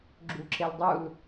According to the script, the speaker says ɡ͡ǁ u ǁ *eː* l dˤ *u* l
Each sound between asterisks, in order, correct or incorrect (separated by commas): incorrect, correct